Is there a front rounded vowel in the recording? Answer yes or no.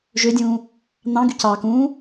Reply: yes